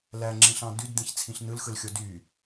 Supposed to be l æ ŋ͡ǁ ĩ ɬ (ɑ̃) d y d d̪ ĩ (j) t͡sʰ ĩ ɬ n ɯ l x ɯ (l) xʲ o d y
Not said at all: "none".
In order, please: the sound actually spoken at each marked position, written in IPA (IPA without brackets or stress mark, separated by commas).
ɑ̃, ç, l